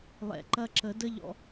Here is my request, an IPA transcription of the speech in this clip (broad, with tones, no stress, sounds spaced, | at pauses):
lˠ ɛ̰˨˩ ǃ ɐ˧ ǁ ə˨˩˦ d ə˧ ʎ ɔ̰˧